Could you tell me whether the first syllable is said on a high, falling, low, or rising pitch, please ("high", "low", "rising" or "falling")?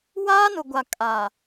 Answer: high